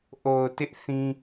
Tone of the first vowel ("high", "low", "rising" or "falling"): low